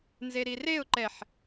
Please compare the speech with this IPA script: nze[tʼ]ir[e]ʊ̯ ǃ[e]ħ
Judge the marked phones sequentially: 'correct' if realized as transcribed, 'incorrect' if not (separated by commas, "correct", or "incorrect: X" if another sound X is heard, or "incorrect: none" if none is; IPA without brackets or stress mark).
incorrect: ɾ, correct, incorrect: ɛ